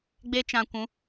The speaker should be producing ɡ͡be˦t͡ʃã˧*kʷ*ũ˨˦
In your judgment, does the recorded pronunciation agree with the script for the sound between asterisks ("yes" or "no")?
yes